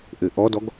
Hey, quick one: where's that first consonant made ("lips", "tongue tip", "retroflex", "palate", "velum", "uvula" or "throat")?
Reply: throat